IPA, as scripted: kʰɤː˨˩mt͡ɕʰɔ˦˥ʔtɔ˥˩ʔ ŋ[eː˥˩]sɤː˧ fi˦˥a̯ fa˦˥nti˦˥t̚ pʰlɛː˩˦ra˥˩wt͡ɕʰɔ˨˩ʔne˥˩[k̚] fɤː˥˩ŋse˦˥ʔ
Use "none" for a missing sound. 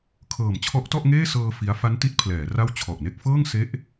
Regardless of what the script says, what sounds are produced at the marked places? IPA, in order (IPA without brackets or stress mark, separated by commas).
eː˥˩, k̚